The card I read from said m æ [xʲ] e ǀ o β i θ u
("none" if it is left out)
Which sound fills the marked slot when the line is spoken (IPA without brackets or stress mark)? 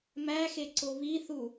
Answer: x